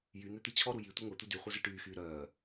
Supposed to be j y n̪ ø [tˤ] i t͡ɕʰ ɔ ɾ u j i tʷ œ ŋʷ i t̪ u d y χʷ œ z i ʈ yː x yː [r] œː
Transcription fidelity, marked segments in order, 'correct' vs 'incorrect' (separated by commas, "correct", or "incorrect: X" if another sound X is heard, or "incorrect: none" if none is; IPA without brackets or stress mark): incorrect: t̪, incorrect: ɾ